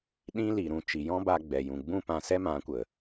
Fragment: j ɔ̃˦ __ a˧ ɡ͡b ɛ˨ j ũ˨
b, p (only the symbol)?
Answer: b